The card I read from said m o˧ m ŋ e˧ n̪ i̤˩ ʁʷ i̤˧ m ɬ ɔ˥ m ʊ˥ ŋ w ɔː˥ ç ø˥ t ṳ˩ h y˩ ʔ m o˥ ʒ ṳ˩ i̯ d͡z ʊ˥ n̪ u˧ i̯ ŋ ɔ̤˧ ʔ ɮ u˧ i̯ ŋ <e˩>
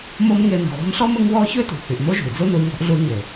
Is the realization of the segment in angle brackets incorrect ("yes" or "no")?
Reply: no